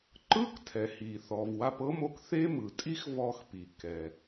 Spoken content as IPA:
ǃɯ˥ktʰɛ˩hi˩ θɔ˩v wa˧pɤ˥mo˧k θe˥ mɯ˩tʼi˥x vɔ˧xpi˩ kɛ˩

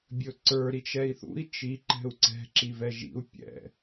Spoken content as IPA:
bʲɵǀə˞ ɾit͡ʃɛi̯θṵi̯ t͡ʃi ǃɛ̤u̯ǀɛ̤ ǁivɛʒḭu̯ pʲɛ̰

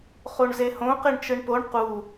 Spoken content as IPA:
χoɳzehõ qeɳt͡ʃɯɳpoɳ qu

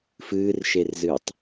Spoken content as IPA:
fɨːrʃerzɨːtˤ

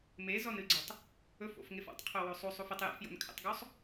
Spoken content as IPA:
mezɔnɨɡ͡ǀɛtˤ | ɵfo̰fŋef ɔ̰tˤqʰowo sˤusˤuf ɪtˤ jæ̰fjo̰nkʰæ̰tˤɡosˤ

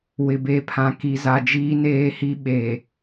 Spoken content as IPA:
wɪ˨be˨˦pʰã˨ ki˨za˨ d͡ʒiː˦neː˦hi˦ ɓe˨

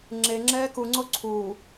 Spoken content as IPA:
ŋ͡ǁeŋ͡ǁɛː kuŋ͡ǀo ǀʰuː

